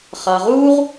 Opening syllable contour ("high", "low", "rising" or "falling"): low